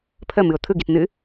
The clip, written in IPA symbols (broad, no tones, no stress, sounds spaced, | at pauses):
pʰ ə m ɨ ʊ̯ t̪ʰ ɯ ɡ i t n̪ ɨ